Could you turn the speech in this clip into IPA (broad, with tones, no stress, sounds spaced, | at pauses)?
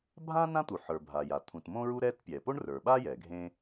bʱ ã˥ n ã˥ t̪ u˩ ħ ə˞˩ bʱ a˩ j a˩ t̪ʰ ũ˩ t m õ˥ ɹ u˥ ɾ ɛ˥ t pʲ ɛ˩ p o˥ ɳ r ə˞˩ ɓ a˥ j ɛ˩ ɡʱ ẽ˥